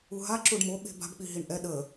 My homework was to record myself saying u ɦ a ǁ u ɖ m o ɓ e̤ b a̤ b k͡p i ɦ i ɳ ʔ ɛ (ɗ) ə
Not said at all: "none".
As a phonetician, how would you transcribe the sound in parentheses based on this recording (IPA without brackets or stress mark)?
ɗ